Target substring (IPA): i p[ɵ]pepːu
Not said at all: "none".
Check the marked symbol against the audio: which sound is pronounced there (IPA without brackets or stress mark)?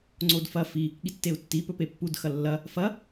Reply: ɵ